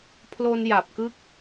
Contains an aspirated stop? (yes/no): yes